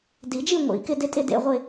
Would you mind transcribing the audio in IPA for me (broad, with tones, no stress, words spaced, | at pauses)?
di˨˩˦d͡ʒi˥˧ŋʷḭ˨˩˦ kɪ˥˧dɪ˥˧tʼɪ˥˧d ḛ˥˧ʁʷɪ˥˧